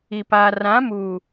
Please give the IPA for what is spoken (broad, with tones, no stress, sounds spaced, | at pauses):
i˨ p aː˨ r ã˨˦ m uː˨